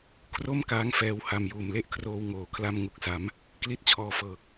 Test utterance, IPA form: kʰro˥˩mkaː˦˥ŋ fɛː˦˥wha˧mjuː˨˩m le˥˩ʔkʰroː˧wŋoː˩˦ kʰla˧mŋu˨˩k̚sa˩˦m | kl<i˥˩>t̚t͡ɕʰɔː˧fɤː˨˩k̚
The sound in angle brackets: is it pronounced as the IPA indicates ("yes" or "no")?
yes